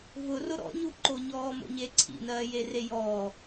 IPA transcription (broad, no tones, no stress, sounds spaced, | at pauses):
v ʊ r ʊ ɾ ɔ̰ ɲ u ǃ o ɲ ɔː m o̰ ɲ e ǀʰ ḭ n ɜː j e r e j ɔː